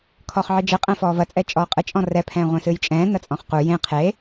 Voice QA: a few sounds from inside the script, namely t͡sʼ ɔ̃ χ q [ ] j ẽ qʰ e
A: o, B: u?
B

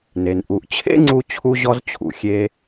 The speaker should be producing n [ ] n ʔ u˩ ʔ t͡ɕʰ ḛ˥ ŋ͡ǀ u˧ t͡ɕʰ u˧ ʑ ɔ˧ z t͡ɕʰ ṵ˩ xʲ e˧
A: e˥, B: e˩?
B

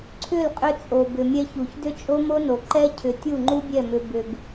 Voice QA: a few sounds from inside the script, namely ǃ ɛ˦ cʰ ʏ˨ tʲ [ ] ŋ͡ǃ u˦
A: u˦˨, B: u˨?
A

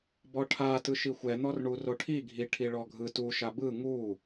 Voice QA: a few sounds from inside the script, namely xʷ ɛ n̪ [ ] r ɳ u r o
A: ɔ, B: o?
A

